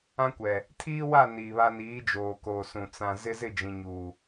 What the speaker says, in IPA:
ã˦kʷɛ˨ | tʰiː˦wa˦˨ niː˨βa˦ niː˨˦ d͡ʒoː˨koː˨sũ˨ t͡sã˨zɪ˦ zɪ˦˨d͡ʒĩ˨ɲuː˨

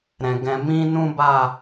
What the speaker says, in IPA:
ɾɛ̃˨ ɡɛ̃˨mĩ˧ nũ˦ba˦˨

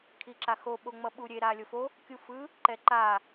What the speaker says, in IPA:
kʰiǁaxo ɓoŋ͡mʌɓuɾʲe ɾalʲofo | kʲufɯ | ǃɛǃa

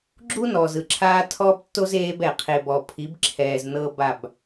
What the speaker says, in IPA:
ɡ͡ǁu˦nɔː˨z ɯ˨ǁʰaː˦tʰɔː˦b tːo˦z eː˦b ɛ˨ qʰe˨bɔ˨pʰi˨˦bǁʰɛː˨z nɤ˦ba˦˨b

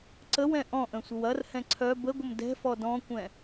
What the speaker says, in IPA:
ǀəwɛ̃ ʔɔ̃ʔə̃sʷəw ɐrhɛ̃ ǀʰœ bəɡʷəm dɛ̤fɔ dɔ̃kʷɛ̃

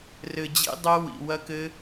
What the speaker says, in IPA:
rɘ˨d͡ʑḭ˧dˤe˧ wḭ˨ wɐ˧kɘ˧

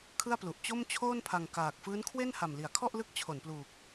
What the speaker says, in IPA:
kʰɯ˥˩a̯plu˨˩ʔ t͡ɕo˥˩mt͡ɕʰoː˥˩npʰa˨˩ŋ kaː˨˩k̚ fɯː˦˥nkʰwe˥˩nha˨˩m li˩˦a̯kʰɔ˥˩ʔlɯ˦˥k̚ t͡ɕʰo˩˦npluː˨˩k̚

